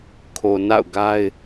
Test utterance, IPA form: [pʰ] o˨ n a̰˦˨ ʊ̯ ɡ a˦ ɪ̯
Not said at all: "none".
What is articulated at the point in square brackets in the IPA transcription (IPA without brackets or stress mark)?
kʰ